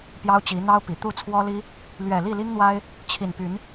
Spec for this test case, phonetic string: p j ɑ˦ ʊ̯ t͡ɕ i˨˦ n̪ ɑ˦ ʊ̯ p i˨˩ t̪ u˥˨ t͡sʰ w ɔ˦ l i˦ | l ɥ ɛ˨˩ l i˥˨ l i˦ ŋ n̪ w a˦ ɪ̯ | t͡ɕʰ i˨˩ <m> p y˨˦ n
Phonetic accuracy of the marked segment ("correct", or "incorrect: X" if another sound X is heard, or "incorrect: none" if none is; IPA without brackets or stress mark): incorrect: n